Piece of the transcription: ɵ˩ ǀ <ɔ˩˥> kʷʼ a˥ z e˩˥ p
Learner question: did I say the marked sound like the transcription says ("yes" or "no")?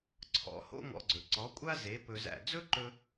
yes